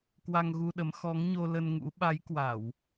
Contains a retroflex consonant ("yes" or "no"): no